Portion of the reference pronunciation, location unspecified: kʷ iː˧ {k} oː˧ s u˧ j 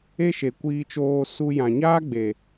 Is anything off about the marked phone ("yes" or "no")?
yes